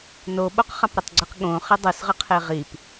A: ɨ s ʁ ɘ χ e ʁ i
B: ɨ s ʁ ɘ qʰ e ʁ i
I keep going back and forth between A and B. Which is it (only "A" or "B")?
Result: B